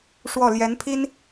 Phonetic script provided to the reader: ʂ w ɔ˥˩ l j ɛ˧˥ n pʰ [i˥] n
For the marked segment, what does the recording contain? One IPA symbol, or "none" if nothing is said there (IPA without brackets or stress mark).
i˥